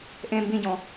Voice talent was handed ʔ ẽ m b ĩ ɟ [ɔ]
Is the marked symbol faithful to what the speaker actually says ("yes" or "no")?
no